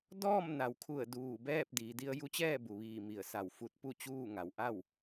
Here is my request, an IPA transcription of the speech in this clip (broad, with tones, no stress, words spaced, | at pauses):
dɔː˥˨mna˩˧wkʰu˧˩ə̯ duː˧˩bɛː˥˨p̚ diː˩˧di˧ə̯ ju˧˥t͡ɕɛː˥˨bu˩ʋiː˧˩ mi˧˩ə̯sa˧˩w fu˧˥t̚pu˥˨t͡ɕuː˥˨ŋa˩w ʔa˥˨w